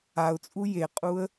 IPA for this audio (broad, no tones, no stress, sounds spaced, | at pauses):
a ʊ̯ t͡sʼ u j e qʼ u ə̯